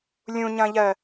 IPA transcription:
lʲ ũ ɲ ɐ̃ ʎ ɜ

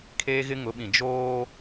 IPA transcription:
kʰ e˦ ɣ ɪ˦ ŋ ʊ˨˦ ɓ ĩ˨ d͡ʒ oː˦

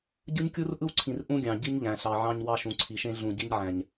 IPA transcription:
ɟ ɯ˦ ɲ kʲ u˦ r ʔ ɯ˦ w ǀʰ ĩ˨ r ʔ ũ˦ ɡʲ ɑ̃˨ ɟ i˦ ɲ ʎ æ̃˨ ɬ ɑ˨ ʕ ɑ̃˦ ɲ w ɑ˦ ʃ ũ˨ ǀʰ i˨ ʃ ẽ˦ ɮ ũ˨ ɟ i˦ ɲ ʕ æ̃˨ ɲ

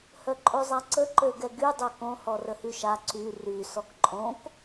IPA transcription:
h œ ǃʼ o zˤ a ǀ ə ǃ ø ɡ ɛ ɡ y dˤ œ k õ h ɔ r ə h y ʃ a ǀ y r y s ɔ k ǃʼ õ k

